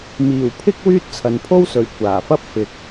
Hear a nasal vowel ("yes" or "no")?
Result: no